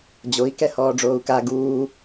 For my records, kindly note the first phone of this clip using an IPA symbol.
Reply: d͡ʑ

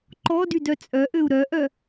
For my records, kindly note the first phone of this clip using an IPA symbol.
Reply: ǃ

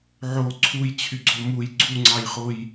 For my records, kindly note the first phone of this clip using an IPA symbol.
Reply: ʕ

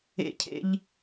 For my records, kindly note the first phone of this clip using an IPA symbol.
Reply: ḛ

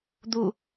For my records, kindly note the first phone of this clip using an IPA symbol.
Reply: d̪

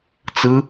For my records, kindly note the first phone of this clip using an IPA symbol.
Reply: t͡s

